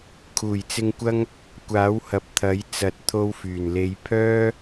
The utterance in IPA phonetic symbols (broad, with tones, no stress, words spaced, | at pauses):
kʰuː˨˩jt͡sɪ˧ŋkʷɐ˥ŋ | kʷaː˨˥whɐ˨p̚ t̪ʰɐ˨˥j t͡sɐ˨˥t̚t̪ʰo˧w fyː˨˩n le˨˧j pʰœː˥